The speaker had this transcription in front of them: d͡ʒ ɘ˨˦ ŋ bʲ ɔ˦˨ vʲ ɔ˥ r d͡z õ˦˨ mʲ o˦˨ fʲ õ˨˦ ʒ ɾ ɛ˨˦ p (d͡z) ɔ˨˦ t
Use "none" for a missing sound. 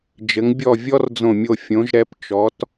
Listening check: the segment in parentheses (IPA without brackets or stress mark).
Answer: t͡ʃ